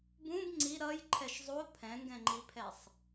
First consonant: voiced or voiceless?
voiced